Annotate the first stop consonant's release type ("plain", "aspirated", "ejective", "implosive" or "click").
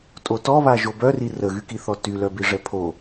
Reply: ejective